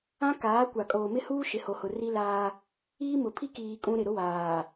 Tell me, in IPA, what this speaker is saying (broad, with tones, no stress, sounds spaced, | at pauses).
ã˦ k aː˨˦ kʷ a˨ kʼ oː˨ m ɪ˦ h uː˦ ʃ ɪ˨ h o˨ h ʊ˨ r i˦ l aː˦ | iː˦ m ʊ˨ pʰ i˦ k iː˨ kʼ ũ˦ ɾ ɪ˨ ɾ ʊ˦ w aː˨